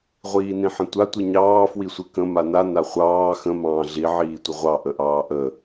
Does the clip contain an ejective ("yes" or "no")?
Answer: no